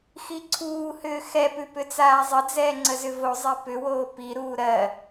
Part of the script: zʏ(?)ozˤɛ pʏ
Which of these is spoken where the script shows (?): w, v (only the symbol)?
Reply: v